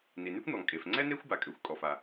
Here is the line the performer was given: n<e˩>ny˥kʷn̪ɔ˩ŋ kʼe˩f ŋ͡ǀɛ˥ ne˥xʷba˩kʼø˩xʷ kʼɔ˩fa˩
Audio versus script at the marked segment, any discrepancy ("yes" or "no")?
yes